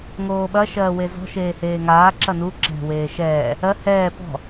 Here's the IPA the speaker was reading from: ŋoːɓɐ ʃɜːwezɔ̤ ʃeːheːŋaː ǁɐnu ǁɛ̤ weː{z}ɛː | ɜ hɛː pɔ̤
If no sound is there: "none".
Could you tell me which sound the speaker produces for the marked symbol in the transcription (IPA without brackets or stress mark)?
ʃ